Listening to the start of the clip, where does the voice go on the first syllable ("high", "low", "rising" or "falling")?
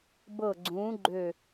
falling